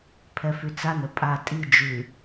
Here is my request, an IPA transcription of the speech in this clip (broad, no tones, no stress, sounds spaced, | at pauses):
pʰ ɛ f y t͡s a n ə pʼ a tʼ i d͡ʒ ʉ